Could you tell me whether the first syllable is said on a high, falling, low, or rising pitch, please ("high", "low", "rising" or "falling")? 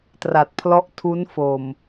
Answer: low